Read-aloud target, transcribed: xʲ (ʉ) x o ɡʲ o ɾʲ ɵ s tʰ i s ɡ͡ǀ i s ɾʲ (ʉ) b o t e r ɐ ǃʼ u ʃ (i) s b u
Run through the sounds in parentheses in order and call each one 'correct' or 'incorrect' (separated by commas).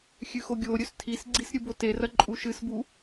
correct, incorrect, incorrect